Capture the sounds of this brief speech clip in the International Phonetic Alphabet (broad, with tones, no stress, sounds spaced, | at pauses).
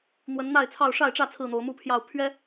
n̪ w ə˨˦ n n̪ a˥˨ ɪ̯ t͡sʰ ɑ˥˨ ʊ̯ ʂ a˥˨ ɪ̯ ʈ͡ʂ ä˥˨ t͡sʰ ɹ̩˥˨ n̪ o˨˦ ʊ̯ m u˦ pʰ j ɑ˥˨ ʊ̯ pʰ ɥ ɛ˦